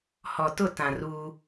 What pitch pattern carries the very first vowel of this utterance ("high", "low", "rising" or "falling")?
low